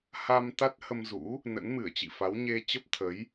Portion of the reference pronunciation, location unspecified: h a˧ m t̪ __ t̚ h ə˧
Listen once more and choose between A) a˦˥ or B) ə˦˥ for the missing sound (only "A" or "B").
A